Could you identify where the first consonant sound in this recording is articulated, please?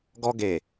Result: velar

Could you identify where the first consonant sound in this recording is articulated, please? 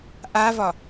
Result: glottal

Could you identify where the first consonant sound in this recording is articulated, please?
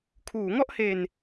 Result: velar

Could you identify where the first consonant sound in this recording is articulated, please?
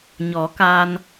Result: palatal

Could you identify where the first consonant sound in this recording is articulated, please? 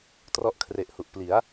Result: alveolar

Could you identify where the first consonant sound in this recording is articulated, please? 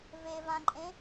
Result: labial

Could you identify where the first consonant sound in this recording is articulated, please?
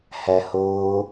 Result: glottal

